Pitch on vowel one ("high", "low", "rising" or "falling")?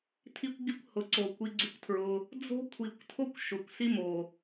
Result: high